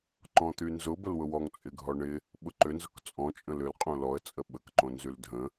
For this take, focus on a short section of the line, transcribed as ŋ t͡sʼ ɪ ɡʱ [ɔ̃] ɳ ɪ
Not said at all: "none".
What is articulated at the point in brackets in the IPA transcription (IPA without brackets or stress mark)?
ɔ